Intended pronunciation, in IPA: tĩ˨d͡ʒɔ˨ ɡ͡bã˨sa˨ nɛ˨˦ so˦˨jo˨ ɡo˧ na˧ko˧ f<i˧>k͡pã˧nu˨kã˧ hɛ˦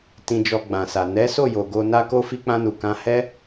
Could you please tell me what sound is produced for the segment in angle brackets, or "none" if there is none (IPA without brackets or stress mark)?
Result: i˧